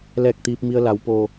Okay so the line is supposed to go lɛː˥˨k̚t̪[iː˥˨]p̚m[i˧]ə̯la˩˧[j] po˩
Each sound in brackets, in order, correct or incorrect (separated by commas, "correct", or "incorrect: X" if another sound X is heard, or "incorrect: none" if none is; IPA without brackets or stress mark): incorrect: iː˧, correct, incorrect: w